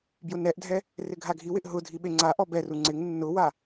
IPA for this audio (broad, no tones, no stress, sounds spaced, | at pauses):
b j ʊ n ɛ ʔ dʱ ɛ | r ɪ ɡʱ a ɡʱ i w ɪ ʔ ɦ ʊ dʱ i ɓ e ŋ͡ǀ a ʔ ɔ b ɛ r u ŋ͡ǀ ɪ ŋ nː ʊ w a